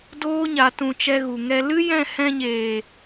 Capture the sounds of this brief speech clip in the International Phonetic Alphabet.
d oː˦ ɲ a˨ t ũ˨ t͡ʃ ɛ˧ ɣ u˨ ŋ ɛ˧ l ɨ˦ j ɛ̃˦˨ h ɛ̃˧ ɲ eː˨

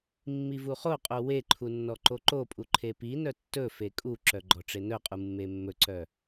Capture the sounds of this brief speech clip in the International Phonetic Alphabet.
mː i v u χ o qʼ o w e ǃʰ u nː ɔ ǃ o ǃ o pʼ u ǃʰ e p i n œ tː ɵ f e kʼ u ǁ œ ɡ͡ǃ ɔ ʈ͡ʂ e n œ qʼ u mː e mː ɵ ǀ œ

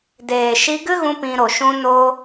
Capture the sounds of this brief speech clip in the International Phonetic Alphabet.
d eː˨ ʃ i˧ ɡ ɨ˦ ɣ ũ˧ p ĩ˧ ɾ o˨ ʃ ũ˦ n o˦

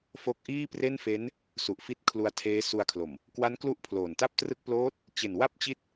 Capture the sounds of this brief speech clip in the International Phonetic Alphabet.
f o˦˥ k̚ ʔ iː˥˩ p r e˥˩ n f e˦˥ n | s u˨˩ ʔ f i˦˥ t̚ kʰ l u˧ a̯ tʰ eː˦˥ s u˧ a̯ kʰ l o˨˩ m | k w a˦˥ n k l u˥˩ ʔ pʰ l oː˨˩ n t a˥˩ p̚ t r ɯ˥˩ k̚ p l oː˦˥ t̚ | t͡ɕ e˨˩ n w a˥˩ p̚ t͡ɕ i˦˥ t̚

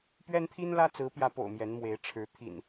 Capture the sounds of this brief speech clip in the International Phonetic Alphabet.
p ɥ ɛ˦ n t̪ʰ i˦ n l ä˦ t͡s ɹ̩˨˦ p j ä˨˦ p o̰˨˩ ʊ̯ m j ɛ˨˦ n m w e˨˦ ɪ̯ ʈ͡ʂʰ ɻ̩˨˦ t̪ʰ ḭ˨˩ n

